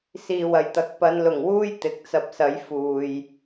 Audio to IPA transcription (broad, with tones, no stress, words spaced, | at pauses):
siː˨˩w ɐ˨˩jt̪ɐ˨k̚ pɐ˨˧nlʊ˨˩ŋwuː˥j t̪ɪ˨k̚t͡sɐ˧p̚sɐ˨˧j fuː˨j